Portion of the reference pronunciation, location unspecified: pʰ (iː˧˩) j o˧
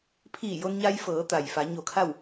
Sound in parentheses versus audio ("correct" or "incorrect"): correct